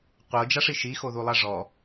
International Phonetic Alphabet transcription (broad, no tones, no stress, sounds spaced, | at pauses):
qʷ ɤ d͡ʒ a ʂ i ʃ i x o ð u lˠ a ʐ ɔ